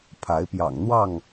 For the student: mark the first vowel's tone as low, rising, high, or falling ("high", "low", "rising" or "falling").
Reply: rising